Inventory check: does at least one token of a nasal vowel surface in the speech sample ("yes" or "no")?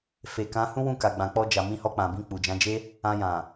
yes